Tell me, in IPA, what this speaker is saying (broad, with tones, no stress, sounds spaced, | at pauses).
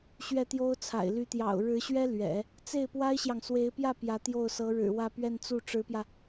ɕ ɥ ɛ˥˩ t̪ j o˥ ʊ̯ t͡sʰ a̰˨˩ ɪ̯ l y˧˥ t̪ j ɑ̰˨˩ ʊ̯ ɻ ɻ̩˧˥ ɕ ɥ ɛ˥ l ɥ ɛ̰˨˩˦ | t͡s e˥˩ ɪ̯ p w a˥ ɪ̯ ɕ j ɑ˨ ŋ s w e˧˥ ɪ̯ p j ä˥˩ p j ä˧˥ t̪ j o˥˩ ʊ̯ s ɤ˧˥ ɻ ɻ̩˨˩ w ä˥˧ p ɥ ɛ˥˧ n t͡s u˥˩ ʈ͡ʂ ɻ̩˧˥ p j ä˧